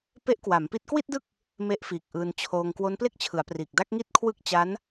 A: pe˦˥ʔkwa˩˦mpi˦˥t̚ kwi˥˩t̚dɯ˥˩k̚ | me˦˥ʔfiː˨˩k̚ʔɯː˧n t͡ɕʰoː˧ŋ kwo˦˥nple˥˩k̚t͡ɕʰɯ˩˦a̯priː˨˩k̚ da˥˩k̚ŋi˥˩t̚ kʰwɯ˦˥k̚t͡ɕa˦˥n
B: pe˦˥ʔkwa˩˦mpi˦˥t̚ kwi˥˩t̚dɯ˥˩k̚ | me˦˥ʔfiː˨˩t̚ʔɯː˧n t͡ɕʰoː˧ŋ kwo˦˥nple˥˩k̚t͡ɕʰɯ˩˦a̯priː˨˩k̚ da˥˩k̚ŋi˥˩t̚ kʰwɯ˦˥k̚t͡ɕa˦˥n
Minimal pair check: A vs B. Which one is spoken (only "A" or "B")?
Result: A